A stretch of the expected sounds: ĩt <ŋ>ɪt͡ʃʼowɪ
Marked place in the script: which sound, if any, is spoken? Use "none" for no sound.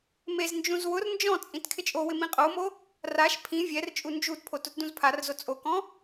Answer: kʰ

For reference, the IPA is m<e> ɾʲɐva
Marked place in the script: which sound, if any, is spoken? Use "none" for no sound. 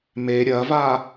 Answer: e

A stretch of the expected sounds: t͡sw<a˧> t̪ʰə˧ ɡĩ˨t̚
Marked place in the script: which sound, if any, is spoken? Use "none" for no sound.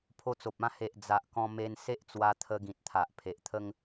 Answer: a˧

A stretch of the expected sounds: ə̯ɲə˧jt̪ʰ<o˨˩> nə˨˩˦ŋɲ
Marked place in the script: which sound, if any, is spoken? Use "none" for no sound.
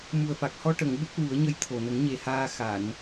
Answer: o˨˩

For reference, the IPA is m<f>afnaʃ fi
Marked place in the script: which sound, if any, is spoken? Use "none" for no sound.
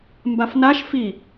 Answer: b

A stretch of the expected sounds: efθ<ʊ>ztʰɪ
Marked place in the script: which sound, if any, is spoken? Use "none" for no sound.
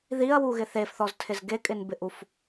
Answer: ɔ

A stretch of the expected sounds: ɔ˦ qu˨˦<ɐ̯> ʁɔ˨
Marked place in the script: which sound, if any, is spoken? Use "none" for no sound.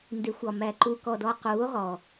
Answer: o̯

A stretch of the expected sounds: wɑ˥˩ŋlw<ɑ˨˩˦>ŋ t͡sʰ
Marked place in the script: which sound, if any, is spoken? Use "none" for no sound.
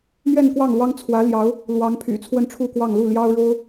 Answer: ɑ˥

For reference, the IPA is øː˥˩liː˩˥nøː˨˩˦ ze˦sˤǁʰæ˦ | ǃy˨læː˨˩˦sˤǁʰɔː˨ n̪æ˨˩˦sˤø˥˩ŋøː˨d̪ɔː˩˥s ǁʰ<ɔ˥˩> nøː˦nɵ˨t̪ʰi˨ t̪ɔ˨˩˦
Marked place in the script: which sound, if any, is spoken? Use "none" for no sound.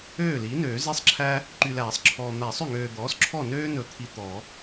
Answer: ɔ˥˩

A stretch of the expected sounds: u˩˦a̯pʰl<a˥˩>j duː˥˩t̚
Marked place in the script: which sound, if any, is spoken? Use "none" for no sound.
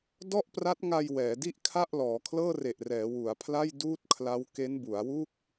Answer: a˥˩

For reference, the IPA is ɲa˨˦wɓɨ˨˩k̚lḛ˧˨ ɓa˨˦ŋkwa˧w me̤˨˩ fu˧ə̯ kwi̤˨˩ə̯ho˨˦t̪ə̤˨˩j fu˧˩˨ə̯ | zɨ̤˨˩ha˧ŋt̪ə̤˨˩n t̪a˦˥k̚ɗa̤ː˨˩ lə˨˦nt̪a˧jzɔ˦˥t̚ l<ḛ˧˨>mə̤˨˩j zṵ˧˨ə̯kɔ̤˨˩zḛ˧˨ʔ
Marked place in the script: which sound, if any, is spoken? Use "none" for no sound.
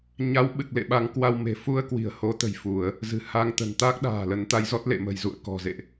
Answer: ḛ˧˨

